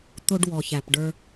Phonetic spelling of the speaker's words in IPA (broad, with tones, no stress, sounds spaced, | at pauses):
t̪ ʊ˧ ɖ w ɔ˨ ç æ˨ p ɖ ə˞˧